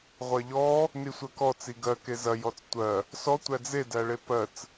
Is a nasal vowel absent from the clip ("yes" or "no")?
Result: yes